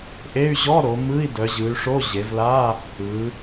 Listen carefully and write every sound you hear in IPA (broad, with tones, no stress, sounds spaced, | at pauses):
ʔ e˧˥˧ y̯ ʑ ɔ˧˥˧ ɾ o˩˧ m ɯ˧˥˧ i̯ d œ˩˧ ʑ ɯ˩˧ y̯ ʂ o˧˥˧ ʑ e˩˧ v l a˧˥˧ | ɯ˩˧